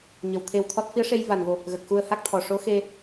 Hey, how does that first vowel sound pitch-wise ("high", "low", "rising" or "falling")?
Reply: low